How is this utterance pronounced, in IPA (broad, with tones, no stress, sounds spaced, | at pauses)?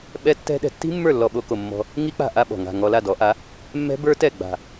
ɓ ɛ˦˥ tː ɛ̤˦˥ ɗ ɛ̤˩˥ tː i̤˦˥ mː ə˞˥˩ lː ɔ˧ ɓ o˧ k o˧˩ mː ɔ̤˧ | ŋ i˦˥ k͡p a̤˧˩ ʔ a˧ ɓ ɔ̤˩ ŋ a̤˧˩ ŋ ɔ˧ l a˥˩ d ɔ˩˥ ʔ a˩˥ | mː ɛ̤˦˥ b ə˞˦˥ t ɛ˥˩ ɡ͡b a̤˧˩